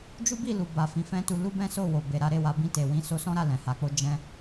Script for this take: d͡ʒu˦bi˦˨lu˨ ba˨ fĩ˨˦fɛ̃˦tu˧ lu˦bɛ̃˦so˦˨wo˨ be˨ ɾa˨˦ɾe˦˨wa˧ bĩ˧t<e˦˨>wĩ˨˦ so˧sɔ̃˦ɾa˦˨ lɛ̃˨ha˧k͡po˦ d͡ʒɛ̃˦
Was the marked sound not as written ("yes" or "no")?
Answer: yes